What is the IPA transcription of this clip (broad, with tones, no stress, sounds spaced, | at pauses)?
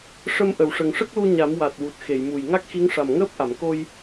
ʂ ə˧ m ʔ ə˨˩˨ w ʂ ə˨˩ ŋ ʂ ə˦˥ k̚ l u˧ ɲ a˨˩˦ m w a˨˩ t̚ w u˨˩ t̚ x e˨˩˨ j m u˨˩ j ŋ a˦˥ k̚ x i˧˥ ŋ ʂ a˨˩ m ŋ əː˦˥ p̚ ʔ a˨˩˨ m k o˧ j